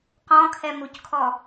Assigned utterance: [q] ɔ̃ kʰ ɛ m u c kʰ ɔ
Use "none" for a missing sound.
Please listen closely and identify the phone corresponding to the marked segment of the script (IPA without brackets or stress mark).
q